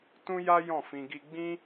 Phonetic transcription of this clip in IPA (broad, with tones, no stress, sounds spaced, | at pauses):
t ũ˦ j a˦ j ɔ̃˦˨ f ĩ˧ ɡ i˦ ɡ͡b ĩ˦